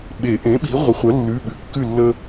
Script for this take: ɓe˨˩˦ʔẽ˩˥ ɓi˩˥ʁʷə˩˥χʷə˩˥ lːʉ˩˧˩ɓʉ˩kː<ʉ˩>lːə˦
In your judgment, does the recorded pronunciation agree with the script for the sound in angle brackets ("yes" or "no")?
no